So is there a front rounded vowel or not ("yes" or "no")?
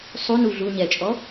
no